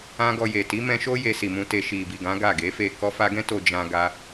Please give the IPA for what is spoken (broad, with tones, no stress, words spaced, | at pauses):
ã˦ɡɔ˧je˨ ti˨˦mɛ̃˧ʃo˦ je˧si˨mũ˧ te˨ ʃi˨bi˨ɡã˨˦ ɡa˦˨ɡe˨˦fe˦˨ kɔ˧fa˧ɡɛ̃˦ to˧d͡ʒã˧ɡa˧